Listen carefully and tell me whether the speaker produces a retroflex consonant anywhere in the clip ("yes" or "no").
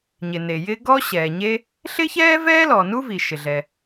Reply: no